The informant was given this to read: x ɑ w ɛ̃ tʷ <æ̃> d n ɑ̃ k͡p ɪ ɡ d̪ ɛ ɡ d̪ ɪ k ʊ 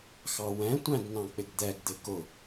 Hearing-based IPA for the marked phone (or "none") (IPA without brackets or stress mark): æ̃